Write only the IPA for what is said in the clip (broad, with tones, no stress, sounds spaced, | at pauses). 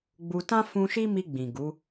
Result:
ɡ͡b u˧ t ã˦ f ũ˧ ʃ i˦ m i˧ ɡ͡b ĩ˨ ɡ u˨˦